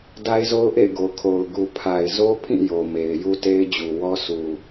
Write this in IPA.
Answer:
d a˦ ɪ̯ z o˦ ʊ̯ ʔ ḛ˦˨ ɪ̯ ɡ o˨ kʰ o˨ ʊ̯ ɡ u˨ pʰ a˨ ɪ̯ z o˦ pʰ ĩ˦˨ j o˨ m e˨ ɪ̯ j u˦ t e˦ ɪ̯ d͡ʑ u˨ w ɔ˦ s u˨

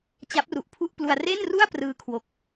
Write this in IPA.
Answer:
t͡ɕ a˦˥ p̚ r u˨˩ ʔ pʰ u˥˩ ʔ p l u˧ a̯ r e˥˩ n r u˥˩ a̯ p r ɯː˧ kʰ w o˨˩ k̚

